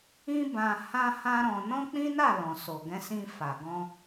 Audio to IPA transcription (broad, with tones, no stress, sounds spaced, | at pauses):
ĩ˦ b ã˧ h ã˦ h ã˦ ɾ ɔ̃˧ n ɔ̃˦ k͡p ĩ˦ n a˦˨ l ɔ̃˨ s o˨ ɡ ɛ̃˧ s ĩ˧ f a˨ ɡ ɔ̃˧